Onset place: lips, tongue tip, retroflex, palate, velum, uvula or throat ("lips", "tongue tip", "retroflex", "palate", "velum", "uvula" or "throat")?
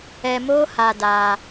lips